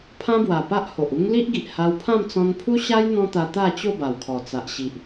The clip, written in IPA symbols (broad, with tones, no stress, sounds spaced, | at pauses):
pʰ ã˦ b w a˨˩ p a˦ ʔ h o˨ ʔ u˦ ŋ l i˦ ʔ ɡ i˨ ʔ h a˧ w pʰ ã˥˧ m t͡s ɔ̃˧ n pʰ u˦ ɕ a˦ j n̪ ɔ̃˦ t̪ a˧ t̪ a˥˧ t͡ɕ o˥˧ b a˨˩ w kʰ ɔ˨˩ t͡s a˨ ʔ ɕ i˨ ʔ